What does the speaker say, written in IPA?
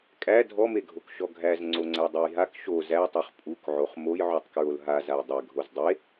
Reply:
kʼ æ dʱ ɔ m e ɡʱ o k ʃ ɔ ɡʱ æ z ŋ͡ǀ o ŋ͡ǀ æ dˤ e j ɦ a k ʃ o z æ tˤ o χ pʼ u k ʕ o χ m o j ʕ u tˤ k ɹ o l ɦ a z a j dˤ ɛ ɡʱ o z dˤ e

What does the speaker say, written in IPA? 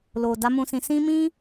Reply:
l o˨ d a˨˦ m ũ˧ s ĩ˧ s ĩ˦ m ĩ˦

